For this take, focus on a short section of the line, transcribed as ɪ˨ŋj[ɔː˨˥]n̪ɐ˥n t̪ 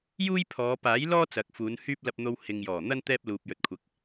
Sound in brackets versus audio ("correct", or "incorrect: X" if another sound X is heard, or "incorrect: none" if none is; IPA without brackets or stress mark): incorrect: ɔː˨˩